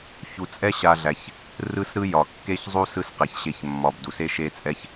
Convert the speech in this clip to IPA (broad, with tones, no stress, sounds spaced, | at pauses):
ç u˨ t͡sʼ ɛ˥ ɕ a˨ ɮ æ˩ ç | r ɯ˦ s ɾ ɯ˦ j ɒ˩ kː e˥ ç zˤ u˥ s ɯ˦ s q æ˩ ç ɕ e˨ ç mː ɒ˨ b d u˩ s e˥ ʃ e˦ t͡sʼ ɛ˦ ç